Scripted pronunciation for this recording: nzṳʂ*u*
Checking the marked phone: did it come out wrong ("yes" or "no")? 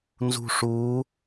yes